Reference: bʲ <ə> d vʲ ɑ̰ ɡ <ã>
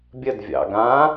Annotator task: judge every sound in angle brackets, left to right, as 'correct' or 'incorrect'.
correct, correct

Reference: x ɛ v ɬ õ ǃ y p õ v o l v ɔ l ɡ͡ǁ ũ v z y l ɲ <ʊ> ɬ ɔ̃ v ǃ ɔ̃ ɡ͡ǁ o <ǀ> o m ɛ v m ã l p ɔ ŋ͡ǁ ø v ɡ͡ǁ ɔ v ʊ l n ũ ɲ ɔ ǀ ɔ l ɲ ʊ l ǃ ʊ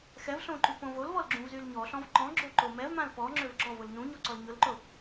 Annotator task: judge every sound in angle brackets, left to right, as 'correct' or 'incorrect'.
incorrect, incorrect

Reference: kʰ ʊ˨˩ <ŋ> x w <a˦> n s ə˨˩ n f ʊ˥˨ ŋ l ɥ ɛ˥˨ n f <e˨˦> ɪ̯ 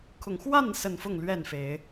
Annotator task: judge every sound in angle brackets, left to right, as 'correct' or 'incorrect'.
correct, incorrect, correct

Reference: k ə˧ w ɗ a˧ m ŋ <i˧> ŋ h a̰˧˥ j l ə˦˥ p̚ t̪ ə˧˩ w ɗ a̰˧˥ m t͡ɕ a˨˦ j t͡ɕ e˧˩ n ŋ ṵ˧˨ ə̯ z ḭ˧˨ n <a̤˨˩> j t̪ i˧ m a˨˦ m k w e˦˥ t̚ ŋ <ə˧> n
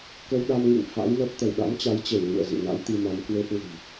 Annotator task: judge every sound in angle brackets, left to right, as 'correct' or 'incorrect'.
incorrect, incorrect, incorrect

